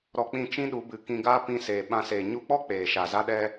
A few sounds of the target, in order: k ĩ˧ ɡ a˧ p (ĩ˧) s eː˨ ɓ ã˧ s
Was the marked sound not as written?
no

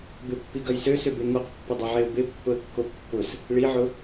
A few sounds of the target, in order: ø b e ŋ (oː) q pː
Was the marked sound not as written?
yes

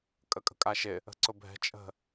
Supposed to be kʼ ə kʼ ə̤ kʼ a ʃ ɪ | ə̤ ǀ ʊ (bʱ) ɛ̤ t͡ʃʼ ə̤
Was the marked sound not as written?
no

